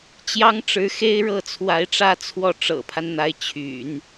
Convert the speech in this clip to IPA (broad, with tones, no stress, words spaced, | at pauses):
t͡ɕjɑ˥ŋʈ͡ʂɻ̩˧˥xe˥ɪ̯ɻɤ˥˩ t͡sʰwa˧˥ɪ̯ʈ͡ʂä˥˧ t͡sʰwɔ˥˩ ʈ͡ʂɤ̰˨˩pʰa˦n n̪a˧˥ɪ̯t͡ɕʰy̰˨˩˦n